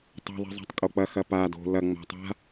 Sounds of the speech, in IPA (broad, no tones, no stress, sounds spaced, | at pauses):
tˤ ɛ̤ ðˤ i̤ zˤ a̤ tˤ kʼ o k͡p ɐ x ɐ p a d o̤ l ɐ ŋ͡m a̤ tˤ a̤